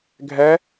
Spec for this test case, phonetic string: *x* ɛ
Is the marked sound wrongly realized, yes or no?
yes